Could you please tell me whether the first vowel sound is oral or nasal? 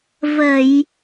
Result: oral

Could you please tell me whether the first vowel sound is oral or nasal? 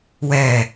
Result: oral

